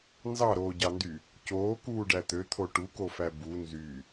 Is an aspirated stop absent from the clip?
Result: no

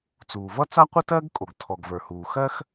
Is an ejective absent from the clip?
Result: no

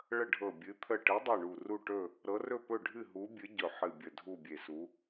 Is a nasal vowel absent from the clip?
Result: yes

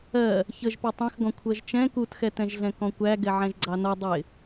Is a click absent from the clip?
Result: no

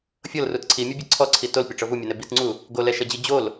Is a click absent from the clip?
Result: no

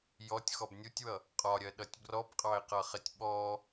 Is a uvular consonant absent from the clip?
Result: no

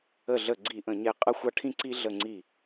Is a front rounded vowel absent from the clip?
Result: yes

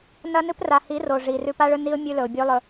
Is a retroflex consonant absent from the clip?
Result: no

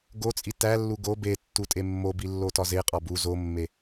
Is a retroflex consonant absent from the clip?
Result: yes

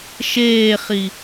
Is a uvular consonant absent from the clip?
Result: no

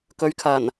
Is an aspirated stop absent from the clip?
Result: no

